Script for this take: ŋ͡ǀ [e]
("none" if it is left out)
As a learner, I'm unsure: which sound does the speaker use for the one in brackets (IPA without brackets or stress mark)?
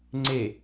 e